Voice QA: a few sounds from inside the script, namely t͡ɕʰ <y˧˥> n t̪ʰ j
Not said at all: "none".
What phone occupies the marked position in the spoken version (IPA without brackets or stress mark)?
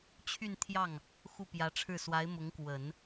y˥˧